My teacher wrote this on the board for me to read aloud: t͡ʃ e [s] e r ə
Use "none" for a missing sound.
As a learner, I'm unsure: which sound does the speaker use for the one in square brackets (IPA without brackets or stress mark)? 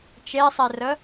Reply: sˤ